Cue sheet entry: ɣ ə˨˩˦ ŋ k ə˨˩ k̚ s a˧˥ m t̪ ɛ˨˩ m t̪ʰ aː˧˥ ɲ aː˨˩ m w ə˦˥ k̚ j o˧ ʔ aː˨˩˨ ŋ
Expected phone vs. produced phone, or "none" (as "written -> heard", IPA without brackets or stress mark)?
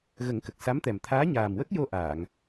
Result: none